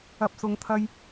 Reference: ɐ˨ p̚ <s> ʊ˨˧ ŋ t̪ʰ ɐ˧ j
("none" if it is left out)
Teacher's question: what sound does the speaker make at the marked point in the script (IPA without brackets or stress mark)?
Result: s